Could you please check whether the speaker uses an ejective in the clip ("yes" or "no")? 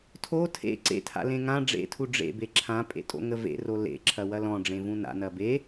yes